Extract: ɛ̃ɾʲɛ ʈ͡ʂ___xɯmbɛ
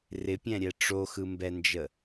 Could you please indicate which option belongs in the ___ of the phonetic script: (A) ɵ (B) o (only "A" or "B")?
B